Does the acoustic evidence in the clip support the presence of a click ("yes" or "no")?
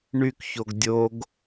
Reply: no